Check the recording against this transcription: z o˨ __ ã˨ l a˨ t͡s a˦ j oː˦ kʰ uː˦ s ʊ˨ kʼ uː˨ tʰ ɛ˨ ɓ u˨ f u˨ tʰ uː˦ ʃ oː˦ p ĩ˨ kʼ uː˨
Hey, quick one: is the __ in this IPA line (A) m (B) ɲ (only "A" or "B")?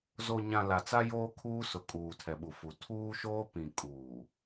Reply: B